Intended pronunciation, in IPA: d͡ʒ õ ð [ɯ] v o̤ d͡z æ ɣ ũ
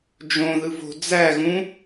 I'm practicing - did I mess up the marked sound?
no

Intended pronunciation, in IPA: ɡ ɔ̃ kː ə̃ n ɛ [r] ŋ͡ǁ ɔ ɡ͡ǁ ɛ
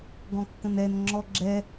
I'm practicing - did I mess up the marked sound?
yes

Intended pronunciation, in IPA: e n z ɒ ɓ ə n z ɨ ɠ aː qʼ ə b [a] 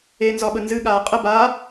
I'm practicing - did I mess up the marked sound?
no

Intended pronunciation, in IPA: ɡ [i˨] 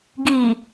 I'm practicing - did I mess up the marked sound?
no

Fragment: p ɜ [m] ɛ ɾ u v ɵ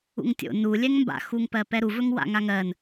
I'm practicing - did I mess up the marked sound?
yes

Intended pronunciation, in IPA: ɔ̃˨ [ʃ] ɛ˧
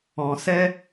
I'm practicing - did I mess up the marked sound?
yes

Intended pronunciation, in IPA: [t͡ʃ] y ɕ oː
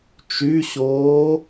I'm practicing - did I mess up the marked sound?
no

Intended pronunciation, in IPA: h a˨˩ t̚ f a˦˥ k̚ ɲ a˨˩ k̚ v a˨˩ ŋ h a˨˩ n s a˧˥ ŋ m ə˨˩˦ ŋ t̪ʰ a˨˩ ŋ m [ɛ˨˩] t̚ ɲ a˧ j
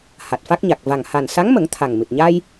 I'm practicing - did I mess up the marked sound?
yes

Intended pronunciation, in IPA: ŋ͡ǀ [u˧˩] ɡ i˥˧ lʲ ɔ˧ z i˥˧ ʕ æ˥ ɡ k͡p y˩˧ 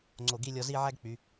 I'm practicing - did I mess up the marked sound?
yes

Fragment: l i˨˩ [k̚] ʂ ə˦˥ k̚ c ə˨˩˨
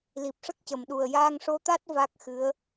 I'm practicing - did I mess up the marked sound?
yes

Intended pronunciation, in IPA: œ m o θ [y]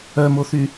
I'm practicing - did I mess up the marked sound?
no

